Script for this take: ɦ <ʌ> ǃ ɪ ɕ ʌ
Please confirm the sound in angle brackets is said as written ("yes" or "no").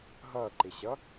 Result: no